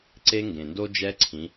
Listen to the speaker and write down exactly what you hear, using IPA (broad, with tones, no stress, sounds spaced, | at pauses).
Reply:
ǀ e˥ ŋ ɡ ẽ˩ n d o˥ d͡ʒ ɛ˧˥ ǀʰ ĩ˩˧